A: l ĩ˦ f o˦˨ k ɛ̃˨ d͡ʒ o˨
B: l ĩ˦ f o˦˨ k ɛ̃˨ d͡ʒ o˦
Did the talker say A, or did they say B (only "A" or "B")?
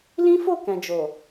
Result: A